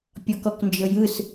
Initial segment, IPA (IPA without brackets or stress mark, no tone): pʲ